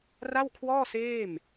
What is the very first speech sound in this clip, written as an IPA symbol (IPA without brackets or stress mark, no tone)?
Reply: r